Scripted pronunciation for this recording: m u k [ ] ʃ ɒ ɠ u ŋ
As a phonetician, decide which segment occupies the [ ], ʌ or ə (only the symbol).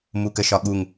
ə